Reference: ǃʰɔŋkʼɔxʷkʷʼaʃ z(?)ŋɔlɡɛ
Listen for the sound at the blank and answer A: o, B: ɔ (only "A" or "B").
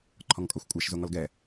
A